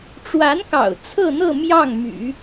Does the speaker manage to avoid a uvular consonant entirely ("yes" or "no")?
yes